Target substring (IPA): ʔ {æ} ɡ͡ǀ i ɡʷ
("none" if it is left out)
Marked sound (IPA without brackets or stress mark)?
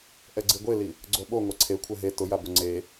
ɛ